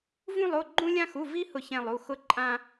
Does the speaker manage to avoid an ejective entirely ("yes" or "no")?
no